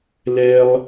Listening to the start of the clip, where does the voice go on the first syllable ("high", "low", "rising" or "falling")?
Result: high